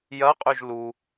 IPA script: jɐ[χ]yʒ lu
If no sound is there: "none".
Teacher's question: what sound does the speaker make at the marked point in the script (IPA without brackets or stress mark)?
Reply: qʼ